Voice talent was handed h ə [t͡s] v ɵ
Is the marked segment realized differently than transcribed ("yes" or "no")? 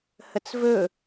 no